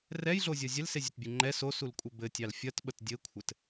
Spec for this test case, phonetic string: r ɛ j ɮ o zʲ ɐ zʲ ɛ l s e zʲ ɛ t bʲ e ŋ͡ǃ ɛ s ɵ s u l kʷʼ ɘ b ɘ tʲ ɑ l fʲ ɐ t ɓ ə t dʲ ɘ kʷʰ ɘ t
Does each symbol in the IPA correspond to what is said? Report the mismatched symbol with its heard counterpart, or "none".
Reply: ɵ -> o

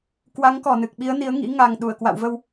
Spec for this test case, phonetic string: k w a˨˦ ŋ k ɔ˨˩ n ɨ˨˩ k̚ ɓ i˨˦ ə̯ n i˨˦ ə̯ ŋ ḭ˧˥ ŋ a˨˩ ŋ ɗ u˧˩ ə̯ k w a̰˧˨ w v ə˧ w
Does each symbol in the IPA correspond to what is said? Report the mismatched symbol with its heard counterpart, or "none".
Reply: none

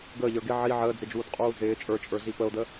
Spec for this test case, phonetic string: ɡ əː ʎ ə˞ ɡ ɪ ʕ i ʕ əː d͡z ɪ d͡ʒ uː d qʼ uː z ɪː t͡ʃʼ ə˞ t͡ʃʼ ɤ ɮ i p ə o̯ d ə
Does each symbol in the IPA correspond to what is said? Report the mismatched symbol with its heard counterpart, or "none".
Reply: ɤ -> ə˞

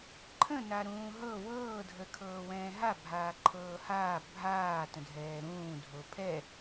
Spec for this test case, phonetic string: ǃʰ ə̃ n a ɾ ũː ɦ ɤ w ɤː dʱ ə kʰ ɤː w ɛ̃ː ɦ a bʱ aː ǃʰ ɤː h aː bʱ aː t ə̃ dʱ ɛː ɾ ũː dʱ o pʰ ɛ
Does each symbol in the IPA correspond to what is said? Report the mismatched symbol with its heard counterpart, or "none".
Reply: none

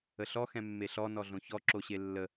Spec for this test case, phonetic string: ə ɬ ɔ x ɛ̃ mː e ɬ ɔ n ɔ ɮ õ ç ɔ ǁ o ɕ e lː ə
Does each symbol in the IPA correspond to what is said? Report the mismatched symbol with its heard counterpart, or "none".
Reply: none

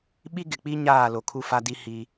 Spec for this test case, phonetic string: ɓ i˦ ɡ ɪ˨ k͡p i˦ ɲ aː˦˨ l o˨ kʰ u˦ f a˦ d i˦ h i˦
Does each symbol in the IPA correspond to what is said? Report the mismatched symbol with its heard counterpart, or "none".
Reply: none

